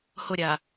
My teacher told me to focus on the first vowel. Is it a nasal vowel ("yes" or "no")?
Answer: no